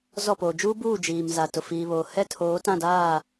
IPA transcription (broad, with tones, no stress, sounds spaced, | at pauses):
z ɔ˦˨ p oː˨ d͡ʒ uː˦ b uː˦˨ d͡ʒ iː˨ m z a˨ t ʊ˨ f iː˨ β oː˨ h ɛ˦ tʰ oː˨˦ t ã˦˨ d aː˦˨